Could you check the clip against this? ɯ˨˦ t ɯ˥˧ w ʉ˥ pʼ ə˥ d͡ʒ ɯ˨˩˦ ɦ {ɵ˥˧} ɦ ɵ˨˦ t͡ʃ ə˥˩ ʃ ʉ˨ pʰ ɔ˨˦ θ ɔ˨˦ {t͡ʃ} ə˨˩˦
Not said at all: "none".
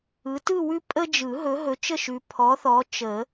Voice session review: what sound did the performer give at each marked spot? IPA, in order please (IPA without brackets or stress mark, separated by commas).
ɵ˨˦, t͡ʃ